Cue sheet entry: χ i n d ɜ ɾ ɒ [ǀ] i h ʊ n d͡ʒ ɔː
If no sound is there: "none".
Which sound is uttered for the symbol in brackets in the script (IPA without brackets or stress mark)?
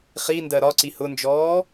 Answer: ǀ